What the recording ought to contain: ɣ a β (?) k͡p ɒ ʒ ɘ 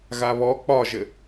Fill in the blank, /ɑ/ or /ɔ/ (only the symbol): ɔ